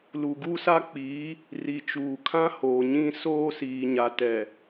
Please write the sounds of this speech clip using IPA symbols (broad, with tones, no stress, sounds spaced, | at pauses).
l u˨ ɡ u˦ s a˦ k͡p iː˨˦ | r i˨ t͡ʃ uː˨ kʰ ã˦ h oː˨ ɲ ĩ˦ s oː˦ s iː˨ ɲ a˨ t ɛ˨